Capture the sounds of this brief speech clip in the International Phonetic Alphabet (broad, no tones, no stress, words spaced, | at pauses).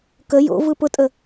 kə jo̰ vɯpʊtʼə